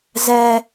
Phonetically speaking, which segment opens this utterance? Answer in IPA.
z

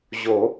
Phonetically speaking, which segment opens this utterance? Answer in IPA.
ʑ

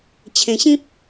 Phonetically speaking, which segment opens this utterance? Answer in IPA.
t͡ɕʰ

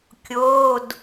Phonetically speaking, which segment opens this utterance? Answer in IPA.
kʲ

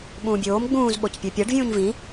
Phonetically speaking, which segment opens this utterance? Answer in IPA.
ɓ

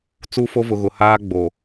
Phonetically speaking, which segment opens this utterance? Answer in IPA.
t͡s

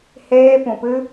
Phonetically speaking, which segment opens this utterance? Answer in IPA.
h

